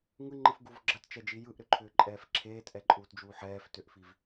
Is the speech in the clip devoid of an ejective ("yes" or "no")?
no